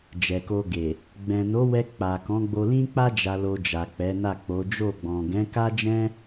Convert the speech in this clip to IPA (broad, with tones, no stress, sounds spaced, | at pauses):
d͡ʒ ɛ˨ k o˧ ɡ e˨ | ɡ͡b ɛ̃˨ n o˨˦ w ɛ˧ k͡p a˨ k ɔ̃˨˦ ɡ͡b o˧ l ĩ˦ k͡p a˦ d͡ʒ a˧ l o˧ d͡ʒ a˨ k͡p ɛ˨˦ n a˦˨ k͡p o˨˦ d͡ʒ o˦˨ ɡ͡b ɔ̃˨ ɡ ɛ̃˨˦ k a˦ d͡ʒ ɛ̃˦